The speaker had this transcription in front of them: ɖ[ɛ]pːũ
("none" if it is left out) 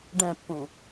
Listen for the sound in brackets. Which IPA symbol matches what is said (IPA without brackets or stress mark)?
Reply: ɛ̃